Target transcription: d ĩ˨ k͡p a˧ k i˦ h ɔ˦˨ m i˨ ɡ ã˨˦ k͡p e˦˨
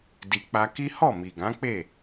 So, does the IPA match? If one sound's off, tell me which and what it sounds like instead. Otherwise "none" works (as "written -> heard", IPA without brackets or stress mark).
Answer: ĩ˨ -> i˨